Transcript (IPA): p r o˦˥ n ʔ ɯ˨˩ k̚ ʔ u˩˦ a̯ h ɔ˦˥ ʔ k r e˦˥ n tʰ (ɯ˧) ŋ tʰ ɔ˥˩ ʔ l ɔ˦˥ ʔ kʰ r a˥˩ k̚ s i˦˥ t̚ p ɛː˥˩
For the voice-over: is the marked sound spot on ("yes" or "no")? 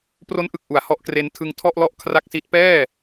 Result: yes